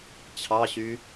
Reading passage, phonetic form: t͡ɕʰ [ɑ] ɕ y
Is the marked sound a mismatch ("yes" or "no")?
no